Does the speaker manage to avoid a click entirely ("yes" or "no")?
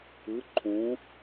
no